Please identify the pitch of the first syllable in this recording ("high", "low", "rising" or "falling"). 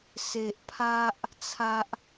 low